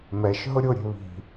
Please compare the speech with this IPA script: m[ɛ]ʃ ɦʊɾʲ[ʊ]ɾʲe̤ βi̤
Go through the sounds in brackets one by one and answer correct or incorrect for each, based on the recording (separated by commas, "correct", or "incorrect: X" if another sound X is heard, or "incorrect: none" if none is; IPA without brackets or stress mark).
correct, correct